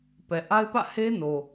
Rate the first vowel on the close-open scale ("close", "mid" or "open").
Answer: mid